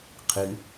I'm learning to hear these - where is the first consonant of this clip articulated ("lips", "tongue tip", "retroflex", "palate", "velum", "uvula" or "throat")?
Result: uvula